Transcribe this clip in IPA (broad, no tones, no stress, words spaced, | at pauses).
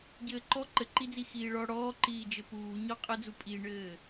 ɟɘːǃɔ ǃɘǃid͡zi xiːɭɔ ɽɔːǃiːd͡ʒɘ puːɲɔ qʼəd͡zu pʼiɳɘː